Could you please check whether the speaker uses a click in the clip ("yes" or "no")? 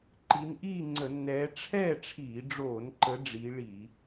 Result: yes